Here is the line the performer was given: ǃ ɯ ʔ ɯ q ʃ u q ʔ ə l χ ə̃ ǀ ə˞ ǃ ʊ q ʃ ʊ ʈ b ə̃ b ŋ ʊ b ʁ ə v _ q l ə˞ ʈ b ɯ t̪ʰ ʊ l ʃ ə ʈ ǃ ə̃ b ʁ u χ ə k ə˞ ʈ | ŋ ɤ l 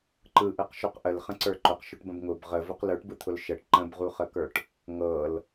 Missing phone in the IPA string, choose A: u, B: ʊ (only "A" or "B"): B